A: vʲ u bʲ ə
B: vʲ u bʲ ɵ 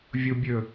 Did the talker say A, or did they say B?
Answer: B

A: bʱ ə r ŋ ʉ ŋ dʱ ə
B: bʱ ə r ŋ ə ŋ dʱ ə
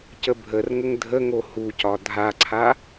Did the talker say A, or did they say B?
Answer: B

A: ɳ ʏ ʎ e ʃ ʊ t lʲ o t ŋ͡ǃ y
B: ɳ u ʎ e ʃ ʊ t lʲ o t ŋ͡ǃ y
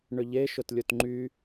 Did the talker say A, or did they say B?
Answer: A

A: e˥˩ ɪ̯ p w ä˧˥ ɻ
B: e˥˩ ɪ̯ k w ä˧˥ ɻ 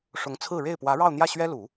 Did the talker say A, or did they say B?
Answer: A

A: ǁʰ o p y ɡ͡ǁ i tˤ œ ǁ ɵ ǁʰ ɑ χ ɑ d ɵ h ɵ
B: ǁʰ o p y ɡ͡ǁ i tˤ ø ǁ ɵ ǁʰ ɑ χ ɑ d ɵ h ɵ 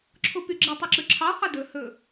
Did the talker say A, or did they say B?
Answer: A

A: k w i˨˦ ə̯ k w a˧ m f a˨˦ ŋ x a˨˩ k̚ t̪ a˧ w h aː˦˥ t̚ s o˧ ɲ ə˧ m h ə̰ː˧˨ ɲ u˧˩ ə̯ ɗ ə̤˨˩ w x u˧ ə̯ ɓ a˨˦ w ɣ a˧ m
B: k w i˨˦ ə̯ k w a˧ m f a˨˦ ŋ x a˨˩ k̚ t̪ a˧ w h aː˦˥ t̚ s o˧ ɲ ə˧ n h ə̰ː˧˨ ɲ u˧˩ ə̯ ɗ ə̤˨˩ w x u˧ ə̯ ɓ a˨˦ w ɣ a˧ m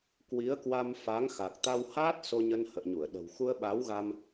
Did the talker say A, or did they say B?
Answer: B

